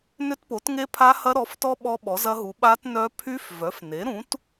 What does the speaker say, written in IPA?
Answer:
n ʏ˦˥ t p o˩˥ t ŋ e˦˥ pʰ a˦˥ h ɐ˦˥ ɾ ɔ˩˥ f t ɔ˦˥ ɓ ɔ˦˥ ɓ ɔ˩˥ z ɐ˦˥ ɦ u˩˥ ɓ a˦˥ t n œ˦˥ pʰ y˦˥ f v œ˩˥ f n e˩˥ ɾ ũ˩˥ t

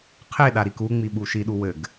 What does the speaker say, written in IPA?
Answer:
qʰ e ɗ a ɾ i k u ŋ͡m i ɓ u ʃ i ɗ u w ɘ ɡ

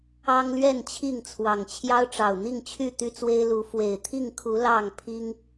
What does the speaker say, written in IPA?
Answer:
ɑ˦ ŋ l ɥ ɛ˥˨ n t͡ɕʰ i˥˨ ŋ t͡sʰ w ɑ˨˩ ŋ t͡ɕʰ j ɑ˦ ʊ̯ ʈ͡ʂ ɑ˨˩ ʊ̯ n̪ i˥˨ ŋ t͡ɕʰ y˥˨ t̪ y˥˨ t͡s w e˦ ɪ̯ l u˨˦ f w e˨˩ ɪ̯ t̪ʰ i˥˨ ŋ kʰ u˨˦ l ɑ˥˨ ŋ pʰ i˦ ŋ

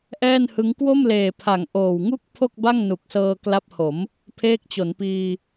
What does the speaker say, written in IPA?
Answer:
ʔ ɛː˥˩ n h ɯ˦˥ ŋ k w o˥˩ m l eː˨˩ pʰ a˩˦ ŋ ʔ oː˨˩ w ŋ u˥˩ k̚ pʰ o˥˩ k̚ b a˥˩ ŋ n u˨˩ k̚ s ɤː˧ k l a˦˥ p̚ h o˩˦ m | pʰ eː˦˥ k̚ t͡ɕ o˩˦ n p iː˧

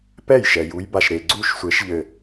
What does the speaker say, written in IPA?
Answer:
p ɛ˥˩ j ʃ ɛ˨ j u˨˦ j b a˨ ʃ ɾ e˨ ɡ͡ǀ u˥˩ ʃ sʷ e˨˦ ʃ ʎ ɘ˨

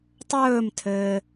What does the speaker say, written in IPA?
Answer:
tˤ ɵː m tʰ ɘː

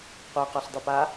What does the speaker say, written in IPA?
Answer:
qʷ e q ɔ ɬ dˤ ʉ p a

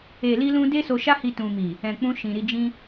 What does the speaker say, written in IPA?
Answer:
e˨ l i˧ l ũ˧ d e˦ s o˧ ʃ a˦ h i˦ t ũ˧ m i˨ | ɛ̃˨ k͡p ũ˧ ʃ ĩ˨ ɾ i˧ d͡ʒ ĩ˦

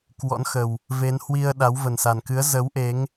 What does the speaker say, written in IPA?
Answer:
k w ɔ̰˧˥ n x ə˨˩ w | v e˨˦ n h w i˧ ə̯ ɗ a˨˦ w v ə˨˩ n s a˨˩ n k ɨ˨˦ ə̯ z ə˨˦ w ʔ e˨˦ ŋ

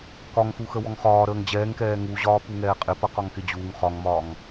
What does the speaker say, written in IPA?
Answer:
k ɒ ŋ x u x ə w ɔ ŋ χ ɒː ɾ əː ŋ d͡ʑ ɛː ŋ k ɛː ŋ u ʑ ɒː p u ŋ ɛː qʼ ɪ p ʌ q ɒ ŋ k ɪ d͡ʑ uː ŋ χ ɒ ŋ m ɒː ŋ

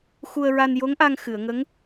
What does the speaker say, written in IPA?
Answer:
x u˧ ə̯ ɹ a˧ n j o˧˥ ŋ ʔ a˧ ŋ x ɨ˨˩˨ ə̯ ŋ ə˧˥ ŋ

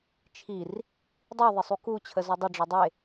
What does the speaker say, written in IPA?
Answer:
t͡ʃʰ i r | dˤ i ðˤ ɪ sˤ u k u t͡ɕʰ ə z o dˤ ɘ ɖ͡ʐ ɒ dˤ e

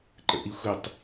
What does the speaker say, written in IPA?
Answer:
ǃ ə̰ ʔ i xʷ i tˤ

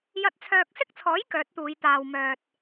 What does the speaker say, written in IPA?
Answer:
j ɐ˧ t̚ t͡sʰ œː˧ k̚ s ɪ˥ k̚ t͡sʰ ɔː˨˥ j k œː˨˥ t̚ t̪ uː˨˧ j t̪ aː˨ w m œː˨ t̚

